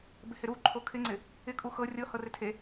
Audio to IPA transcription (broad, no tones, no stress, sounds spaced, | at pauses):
b ɪ h ɪ ɾ u ǃʰ o kʰ ɪ ŋ͡ǀ ɪ | ɪ kʼ u x ɤ rʲ ɤ h ɤ r ɪ tʰ e